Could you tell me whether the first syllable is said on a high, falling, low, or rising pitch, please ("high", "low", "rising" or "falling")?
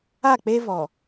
falling